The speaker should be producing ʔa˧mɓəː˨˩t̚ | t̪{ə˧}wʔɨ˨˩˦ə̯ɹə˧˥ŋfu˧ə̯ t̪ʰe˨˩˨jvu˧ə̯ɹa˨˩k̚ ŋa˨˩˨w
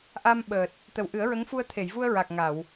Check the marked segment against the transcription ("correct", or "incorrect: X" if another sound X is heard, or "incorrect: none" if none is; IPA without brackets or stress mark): incorrect: ə˨˩